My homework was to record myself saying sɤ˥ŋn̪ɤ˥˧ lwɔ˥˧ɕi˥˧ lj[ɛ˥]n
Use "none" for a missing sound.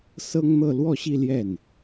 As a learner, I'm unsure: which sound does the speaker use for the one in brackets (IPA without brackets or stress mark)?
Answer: ɛ˥˩